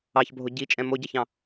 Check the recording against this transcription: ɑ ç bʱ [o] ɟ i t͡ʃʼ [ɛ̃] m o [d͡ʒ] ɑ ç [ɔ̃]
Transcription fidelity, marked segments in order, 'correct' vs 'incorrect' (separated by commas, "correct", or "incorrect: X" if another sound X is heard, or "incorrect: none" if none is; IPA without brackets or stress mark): correct, correct, incorrect: ɟ, incorrect: ɑ̃